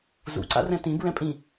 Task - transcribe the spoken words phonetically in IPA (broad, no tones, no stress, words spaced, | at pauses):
zṵǀa̰rɛ̃ tĩbɹɛ̃pʼĩ